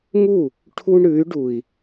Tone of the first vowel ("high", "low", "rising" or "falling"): falling